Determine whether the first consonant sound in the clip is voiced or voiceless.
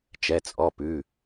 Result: voiceless